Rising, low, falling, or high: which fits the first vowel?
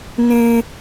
high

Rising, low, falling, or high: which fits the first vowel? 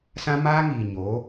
high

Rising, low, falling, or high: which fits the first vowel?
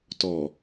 low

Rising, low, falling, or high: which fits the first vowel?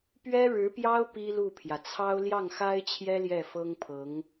high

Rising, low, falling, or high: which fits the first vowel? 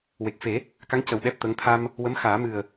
low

